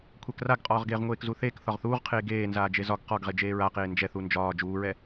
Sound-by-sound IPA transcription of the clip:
kʷʰ ɛ k r a ɡ qʼ ɒː ʁ ɡ eː ʁ ŋʷ eː k z u θ eː k θ ɒ ʁ θ uː ʁ qʰ eː ɡ eː n z aː d͡ʒ e z ɒ ɡ q ɒ ɡ ʁ e d͡ʒ eː ɹ a q eː n d͡ʒ ɛ θ u n d͡ʒ ɒː d͡ʒ uː ɹ ɛ

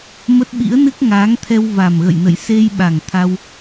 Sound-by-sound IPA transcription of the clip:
m ə˦˥ t̚ ɓ ḭ˧˥ ə̯ n ɨ˦˥ k̚ ŋ aː˨˦ ŋ t̪ʰ ɛ˧ w v a˨˩ m ɣ ə̰˧˨ j n ə̰˧˨ j s e˧ j ɓ a˨˩ ŋ t̪ʰ a˧ w

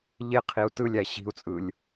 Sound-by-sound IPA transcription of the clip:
ʎ e qʰ i u̯ t ɯ lʲ æ ɕ i̤ u̯ t͡sʼ ɯ lʲ

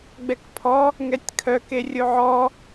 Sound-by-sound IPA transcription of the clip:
ɡ͡b ɛ k pʰ ɔ | ŋ ɛ tʲ kʰ œ k e rʲ o ʕ ɔ

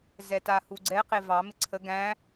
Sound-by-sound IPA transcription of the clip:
z ɛ t a h u ɡ͡ǀ ɛ q e v ɑ m ɪ ǀʰ ə ɡ æ̃

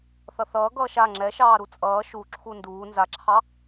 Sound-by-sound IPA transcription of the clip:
θ ʌ θ ʌː ɡ ʌː ʃ a ŋ͡ǁ ɛ ʃ ɑː ɾ u t͡sʼ ʌː ʃ u ǁʰ u n d uː n z a ǁʰ ɑ

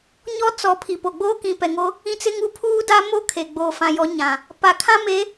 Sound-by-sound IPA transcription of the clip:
ɲ ɔ˦ t͡s ɔ˨˦ pʰ i˨ p o˨ ɡ͡b oː˦ k ĩ˨ p ɛ˨ ŋ o˦ | ĩ˦ t͡s ɪ˦ ŋ u˦ pʰ uː˦ d a˦ m o˦ kʰ e˨ ɡ͡b oː˨ f ã˨ j ɔ˨˦ ɲ ã˨ | p a˨˦ kʰ ã˦ m e˨˦

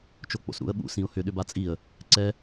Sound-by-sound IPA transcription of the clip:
t͡ʃ o k͡p o̰ s ɾ ṵ ə̯ ɓ ṵ s ĩ ʊ̯ h ʏ ɗ ʏ b a t͡sʼ i ə̯ | ǀ ɛ

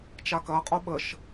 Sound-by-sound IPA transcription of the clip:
t͡ʃ a k ɐ qʼ o ɓ ə ʃ

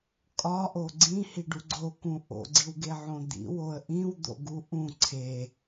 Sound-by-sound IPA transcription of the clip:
kʼ ɒ ʔ o ɡ͡ǀ ĩ h i ɖ u ɡ͡ǀ o k ũ ʔ o̰ ɡ͡ǀ i w ɡ e ʕ õ d̪ ḭ w o ə̯ ʔ ĩ w d̪ o̰ ɡ u ʔ ũ ǀʰ e

